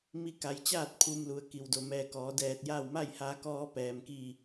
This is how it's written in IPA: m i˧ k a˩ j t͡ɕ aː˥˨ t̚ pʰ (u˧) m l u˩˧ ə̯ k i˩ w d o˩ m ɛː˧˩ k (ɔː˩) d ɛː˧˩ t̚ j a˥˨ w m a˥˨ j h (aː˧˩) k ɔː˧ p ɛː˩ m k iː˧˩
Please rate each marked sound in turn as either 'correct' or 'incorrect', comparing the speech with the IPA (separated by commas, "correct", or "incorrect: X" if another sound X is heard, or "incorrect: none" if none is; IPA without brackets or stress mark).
correct, incorrect: ɔː˩˧, incorrect: aː˧